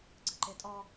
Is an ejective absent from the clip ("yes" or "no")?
no